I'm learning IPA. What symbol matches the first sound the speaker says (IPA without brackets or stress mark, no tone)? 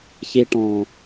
ç